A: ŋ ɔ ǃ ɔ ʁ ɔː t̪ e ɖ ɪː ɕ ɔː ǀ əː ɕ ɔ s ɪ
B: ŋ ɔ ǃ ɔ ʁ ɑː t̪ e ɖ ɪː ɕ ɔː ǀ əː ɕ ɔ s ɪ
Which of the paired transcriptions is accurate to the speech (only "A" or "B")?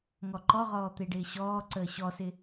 A